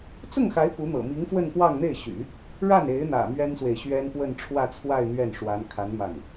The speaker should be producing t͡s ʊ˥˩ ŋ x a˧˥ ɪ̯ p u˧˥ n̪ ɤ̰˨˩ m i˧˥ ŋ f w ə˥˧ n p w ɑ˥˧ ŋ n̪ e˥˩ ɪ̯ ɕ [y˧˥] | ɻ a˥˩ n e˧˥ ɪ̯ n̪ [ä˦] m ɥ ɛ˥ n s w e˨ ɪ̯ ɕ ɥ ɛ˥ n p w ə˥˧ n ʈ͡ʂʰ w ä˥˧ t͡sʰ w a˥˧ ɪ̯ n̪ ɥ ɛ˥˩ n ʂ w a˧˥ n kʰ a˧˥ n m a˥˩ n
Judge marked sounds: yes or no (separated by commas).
no, no